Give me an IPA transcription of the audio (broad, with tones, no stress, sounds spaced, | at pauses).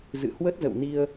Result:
z ɨ̰˧˨ h w ə˦˥ t̚ z ə̰˧˨ w n i˧ ə̯